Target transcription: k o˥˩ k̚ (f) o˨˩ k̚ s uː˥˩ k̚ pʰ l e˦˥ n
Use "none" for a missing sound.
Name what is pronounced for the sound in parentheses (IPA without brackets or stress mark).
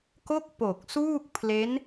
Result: p